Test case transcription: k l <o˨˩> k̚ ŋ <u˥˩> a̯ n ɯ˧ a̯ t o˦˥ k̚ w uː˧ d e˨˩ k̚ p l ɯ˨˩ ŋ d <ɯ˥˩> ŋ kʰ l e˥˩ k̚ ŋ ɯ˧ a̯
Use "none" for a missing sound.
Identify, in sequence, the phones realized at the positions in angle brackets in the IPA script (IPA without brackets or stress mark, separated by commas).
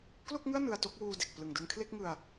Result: o˥˩, ɯ˥˩, ɯ˧